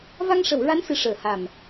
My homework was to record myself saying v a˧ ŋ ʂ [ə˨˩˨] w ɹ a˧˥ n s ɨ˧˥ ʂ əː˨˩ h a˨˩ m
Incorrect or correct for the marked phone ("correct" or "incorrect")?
correct